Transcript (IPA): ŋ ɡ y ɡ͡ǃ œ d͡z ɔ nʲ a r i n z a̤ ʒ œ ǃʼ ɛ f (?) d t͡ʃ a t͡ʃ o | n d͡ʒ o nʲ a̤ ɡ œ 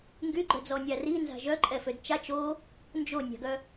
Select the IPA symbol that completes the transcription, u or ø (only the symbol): ø